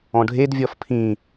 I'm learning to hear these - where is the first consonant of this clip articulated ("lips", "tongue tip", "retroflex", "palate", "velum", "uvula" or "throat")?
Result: retroflex